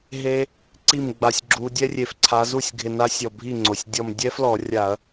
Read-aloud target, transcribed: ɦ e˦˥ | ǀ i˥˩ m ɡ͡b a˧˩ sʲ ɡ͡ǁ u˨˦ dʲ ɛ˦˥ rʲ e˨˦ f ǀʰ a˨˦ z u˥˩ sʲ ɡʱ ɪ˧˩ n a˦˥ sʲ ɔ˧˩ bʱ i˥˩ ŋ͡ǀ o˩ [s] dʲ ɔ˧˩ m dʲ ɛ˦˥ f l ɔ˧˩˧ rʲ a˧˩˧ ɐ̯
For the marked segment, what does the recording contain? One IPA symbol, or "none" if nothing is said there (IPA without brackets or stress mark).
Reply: sʲ